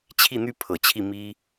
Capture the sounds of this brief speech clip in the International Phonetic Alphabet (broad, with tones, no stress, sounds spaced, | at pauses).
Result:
t͡ɕʰ i˥˩ n̪ y˥ pʰ ɤ˨˩ t͡ɕʰ i˥˩ m i˥